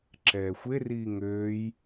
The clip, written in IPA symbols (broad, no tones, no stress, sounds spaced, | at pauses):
ǁ ɛː xʷ e r iː ŋ øː j